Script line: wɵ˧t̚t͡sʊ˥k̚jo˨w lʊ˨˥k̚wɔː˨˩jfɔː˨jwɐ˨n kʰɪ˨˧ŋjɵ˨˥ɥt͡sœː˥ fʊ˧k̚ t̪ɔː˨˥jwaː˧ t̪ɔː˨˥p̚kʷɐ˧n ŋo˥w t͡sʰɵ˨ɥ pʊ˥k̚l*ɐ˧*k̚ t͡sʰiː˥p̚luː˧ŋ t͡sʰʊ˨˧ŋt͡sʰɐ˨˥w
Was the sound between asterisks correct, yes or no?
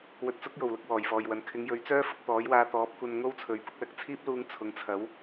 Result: no